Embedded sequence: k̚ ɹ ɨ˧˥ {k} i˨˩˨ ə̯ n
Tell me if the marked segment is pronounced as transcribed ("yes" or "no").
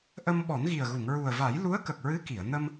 yes